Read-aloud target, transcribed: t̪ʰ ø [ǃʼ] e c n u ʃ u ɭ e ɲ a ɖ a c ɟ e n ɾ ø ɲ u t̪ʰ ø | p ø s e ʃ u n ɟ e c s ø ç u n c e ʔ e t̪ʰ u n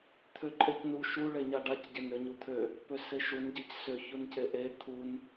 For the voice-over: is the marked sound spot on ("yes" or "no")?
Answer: yes